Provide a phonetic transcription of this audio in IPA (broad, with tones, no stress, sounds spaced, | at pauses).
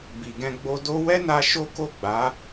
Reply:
b i˨ ɡ ɛ̃˧ ɡ͡b o˧ d o˦ w ɛ˦ n a˧ ʃ o˦ k o˦˨ ɡ͡b a˨˦